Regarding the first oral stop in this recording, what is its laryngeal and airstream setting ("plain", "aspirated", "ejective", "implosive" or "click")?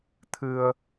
aspirated